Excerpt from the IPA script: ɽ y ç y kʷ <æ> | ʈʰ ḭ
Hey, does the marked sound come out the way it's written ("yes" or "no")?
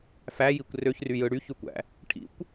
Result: no